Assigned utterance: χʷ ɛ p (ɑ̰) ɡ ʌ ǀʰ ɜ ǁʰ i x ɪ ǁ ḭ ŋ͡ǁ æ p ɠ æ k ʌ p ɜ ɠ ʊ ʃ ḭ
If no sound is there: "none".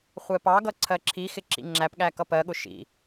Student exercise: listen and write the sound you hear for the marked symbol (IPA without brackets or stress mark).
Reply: ɑ